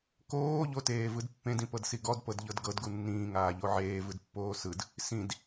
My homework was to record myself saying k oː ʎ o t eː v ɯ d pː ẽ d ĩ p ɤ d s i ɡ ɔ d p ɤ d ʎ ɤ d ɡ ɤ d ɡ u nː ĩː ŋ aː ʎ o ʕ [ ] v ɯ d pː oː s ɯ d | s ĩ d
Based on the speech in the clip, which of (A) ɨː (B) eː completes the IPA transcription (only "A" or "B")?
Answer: B